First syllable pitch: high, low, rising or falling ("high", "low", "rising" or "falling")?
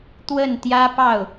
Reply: falling